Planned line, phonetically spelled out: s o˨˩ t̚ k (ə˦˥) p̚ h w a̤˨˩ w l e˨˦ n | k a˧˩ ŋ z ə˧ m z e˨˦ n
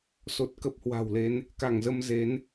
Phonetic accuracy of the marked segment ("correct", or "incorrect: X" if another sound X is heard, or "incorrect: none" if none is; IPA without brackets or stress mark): correct